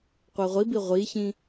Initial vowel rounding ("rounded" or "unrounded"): unrounded